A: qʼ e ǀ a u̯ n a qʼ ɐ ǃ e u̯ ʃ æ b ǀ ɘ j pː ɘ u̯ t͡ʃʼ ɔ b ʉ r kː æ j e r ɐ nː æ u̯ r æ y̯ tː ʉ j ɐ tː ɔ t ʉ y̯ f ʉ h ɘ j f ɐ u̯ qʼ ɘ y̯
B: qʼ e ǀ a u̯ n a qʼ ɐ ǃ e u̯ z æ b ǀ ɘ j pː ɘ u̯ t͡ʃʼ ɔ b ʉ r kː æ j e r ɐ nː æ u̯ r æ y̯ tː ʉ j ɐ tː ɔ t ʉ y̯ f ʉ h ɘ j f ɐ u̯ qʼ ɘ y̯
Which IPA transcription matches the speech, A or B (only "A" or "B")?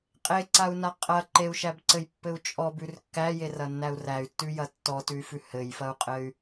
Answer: A